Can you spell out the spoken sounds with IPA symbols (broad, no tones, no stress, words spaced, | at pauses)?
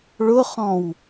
ɭʊχɔ̃w